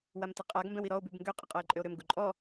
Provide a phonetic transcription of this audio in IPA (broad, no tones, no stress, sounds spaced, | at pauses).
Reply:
w a m t ə qʼ a ɡ m b ɛ̃ w i ɾ ɔ o̯ b y b ŋ ɡ ø qʼ ə qʼ ɔ e̯ ǃʼ ø o̯ ɾ ø m ɡ u ǃʼ ɔ